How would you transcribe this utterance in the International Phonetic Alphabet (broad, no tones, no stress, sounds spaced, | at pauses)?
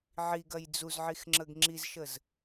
ʕ i ɡ ɐ j d͡z u z ʕ i x ŋ͡ǁ ə ɡ ŋ͡ǁ i z ʃ ə z